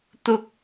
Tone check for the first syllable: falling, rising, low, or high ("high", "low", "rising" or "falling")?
high